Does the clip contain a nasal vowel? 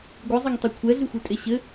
no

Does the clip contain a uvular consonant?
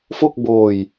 no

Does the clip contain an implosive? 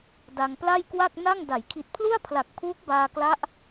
no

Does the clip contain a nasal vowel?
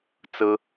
no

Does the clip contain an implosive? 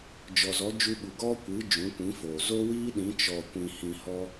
yes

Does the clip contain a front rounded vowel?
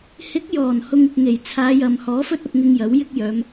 yes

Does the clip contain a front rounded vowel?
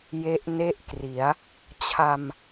no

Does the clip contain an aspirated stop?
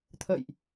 yes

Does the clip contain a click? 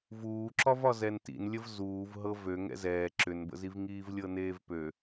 yes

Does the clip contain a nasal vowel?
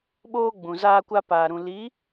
yes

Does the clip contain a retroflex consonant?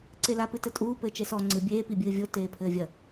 no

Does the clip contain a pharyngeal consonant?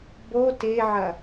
yes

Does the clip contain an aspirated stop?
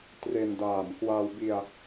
no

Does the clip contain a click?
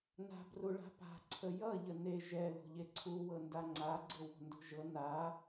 yes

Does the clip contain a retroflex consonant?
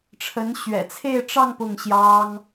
yes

